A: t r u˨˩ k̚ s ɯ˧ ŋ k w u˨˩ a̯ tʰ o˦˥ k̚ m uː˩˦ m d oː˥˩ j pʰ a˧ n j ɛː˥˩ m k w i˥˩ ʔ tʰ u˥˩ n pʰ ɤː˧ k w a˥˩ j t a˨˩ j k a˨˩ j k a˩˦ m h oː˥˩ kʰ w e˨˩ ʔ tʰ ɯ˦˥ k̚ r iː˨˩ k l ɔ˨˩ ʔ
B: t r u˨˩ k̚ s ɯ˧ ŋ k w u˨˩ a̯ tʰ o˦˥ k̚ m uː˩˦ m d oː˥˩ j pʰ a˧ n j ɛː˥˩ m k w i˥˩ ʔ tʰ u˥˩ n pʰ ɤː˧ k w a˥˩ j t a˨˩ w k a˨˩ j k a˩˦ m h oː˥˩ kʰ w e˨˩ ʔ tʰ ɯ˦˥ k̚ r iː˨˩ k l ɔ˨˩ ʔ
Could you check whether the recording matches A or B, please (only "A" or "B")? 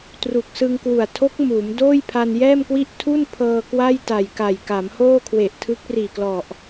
A